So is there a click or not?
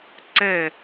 yes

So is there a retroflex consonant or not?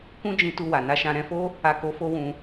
no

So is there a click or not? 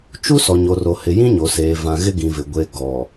no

